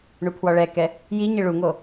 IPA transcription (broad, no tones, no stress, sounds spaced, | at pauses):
ɳ u pʰ w ɔ ɭ ɛ k ɛ | j i ɲ ɪ ɭ u ŋ o